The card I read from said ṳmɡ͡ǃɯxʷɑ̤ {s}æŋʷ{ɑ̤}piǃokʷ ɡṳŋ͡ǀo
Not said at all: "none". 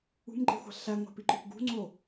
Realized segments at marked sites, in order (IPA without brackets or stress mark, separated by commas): ɬ, ɑ̤